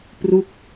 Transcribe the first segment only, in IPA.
p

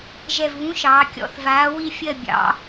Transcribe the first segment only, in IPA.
ʒ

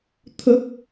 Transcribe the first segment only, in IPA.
t̪ʰ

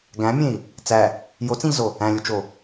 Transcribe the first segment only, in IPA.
ɡ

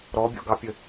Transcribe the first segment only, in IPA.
ɾ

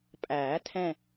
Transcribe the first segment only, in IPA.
pʼ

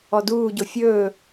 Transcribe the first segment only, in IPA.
ɔ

